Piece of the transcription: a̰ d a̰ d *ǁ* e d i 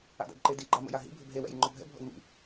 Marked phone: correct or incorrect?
incorrect